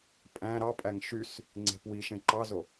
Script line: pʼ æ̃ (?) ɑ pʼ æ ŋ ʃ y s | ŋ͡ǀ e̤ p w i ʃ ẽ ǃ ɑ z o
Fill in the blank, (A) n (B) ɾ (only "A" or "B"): B